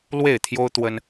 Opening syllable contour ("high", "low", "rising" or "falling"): falling